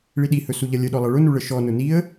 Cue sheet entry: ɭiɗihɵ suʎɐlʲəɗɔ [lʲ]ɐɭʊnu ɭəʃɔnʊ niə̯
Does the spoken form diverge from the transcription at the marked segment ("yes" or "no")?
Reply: yes